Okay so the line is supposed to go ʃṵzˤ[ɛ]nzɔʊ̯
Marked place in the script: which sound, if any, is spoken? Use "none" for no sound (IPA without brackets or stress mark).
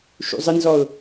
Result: ɘ